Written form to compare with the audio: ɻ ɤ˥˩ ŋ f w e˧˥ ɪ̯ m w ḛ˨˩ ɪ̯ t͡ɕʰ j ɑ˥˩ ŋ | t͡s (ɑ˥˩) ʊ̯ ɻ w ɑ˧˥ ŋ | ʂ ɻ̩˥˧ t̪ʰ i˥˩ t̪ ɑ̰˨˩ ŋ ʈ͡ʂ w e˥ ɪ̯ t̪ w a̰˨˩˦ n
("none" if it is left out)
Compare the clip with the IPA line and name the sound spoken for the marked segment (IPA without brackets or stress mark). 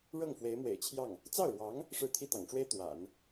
ɑ˥˩